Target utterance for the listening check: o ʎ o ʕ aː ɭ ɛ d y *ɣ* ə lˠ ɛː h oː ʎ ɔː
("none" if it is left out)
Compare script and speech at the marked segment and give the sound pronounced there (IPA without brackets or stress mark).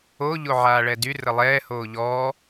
r